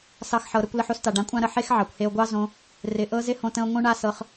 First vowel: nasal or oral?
oral